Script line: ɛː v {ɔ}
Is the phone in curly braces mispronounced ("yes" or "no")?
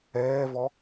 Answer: no